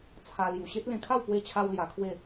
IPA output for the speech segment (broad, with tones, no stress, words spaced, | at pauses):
t͡sʰa˧ lju˨˩ɕe˦t̚ lẽ˧kʰa˥˧w pwe˥˧t͡ɕʰa˦w lja˧kʰwe˥˧